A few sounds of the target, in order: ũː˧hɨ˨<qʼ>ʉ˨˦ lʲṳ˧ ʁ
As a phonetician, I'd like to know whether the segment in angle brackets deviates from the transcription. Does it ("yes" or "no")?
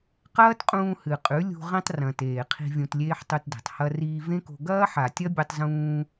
no